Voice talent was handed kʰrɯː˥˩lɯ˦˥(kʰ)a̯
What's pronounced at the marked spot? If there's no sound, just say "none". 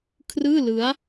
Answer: none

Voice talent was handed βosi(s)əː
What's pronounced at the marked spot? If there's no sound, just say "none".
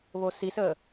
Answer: s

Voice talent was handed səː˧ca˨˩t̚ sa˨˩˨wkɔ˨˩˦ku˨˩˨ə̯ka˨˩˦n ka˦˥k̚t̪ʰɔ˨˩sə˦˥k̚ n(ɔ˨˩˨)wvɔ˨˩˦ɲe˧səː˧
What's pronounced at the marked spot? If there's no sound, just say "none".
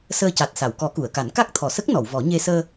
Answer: ɔ˨˩˨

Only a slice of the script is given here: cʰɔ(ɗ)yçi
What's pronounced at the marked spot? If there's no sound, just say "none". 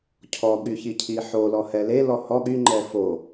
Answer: ɠ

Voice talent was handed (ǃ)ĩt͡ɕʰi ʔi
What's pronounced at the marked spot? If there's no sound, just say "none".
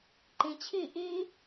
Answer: ǃ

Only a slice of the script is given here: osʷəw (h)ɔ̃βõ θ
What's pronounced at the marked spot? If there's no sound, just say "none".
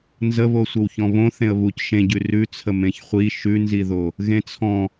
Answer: ç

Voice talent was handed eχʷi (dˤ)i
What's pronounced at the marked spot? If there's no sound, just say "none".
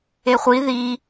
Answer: ð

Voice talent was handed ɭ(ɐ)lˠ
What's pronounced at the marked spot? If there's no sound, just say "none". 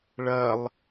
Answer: ɐ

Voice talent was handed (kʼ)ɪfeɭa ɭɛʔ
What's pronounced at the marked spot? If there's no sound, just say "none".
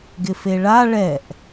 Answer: ɡ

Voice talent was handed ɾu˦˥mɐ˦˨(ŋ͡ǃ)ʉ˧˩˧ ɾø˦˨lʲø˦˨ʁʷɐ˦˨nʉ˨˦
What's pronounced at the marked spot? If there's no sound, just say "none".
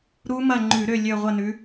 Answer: ŋ͡ǃ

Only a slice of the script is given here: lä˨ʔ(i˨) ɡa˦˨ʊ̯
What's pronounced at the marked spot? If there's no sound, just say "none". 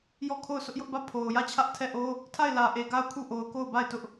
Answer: e˨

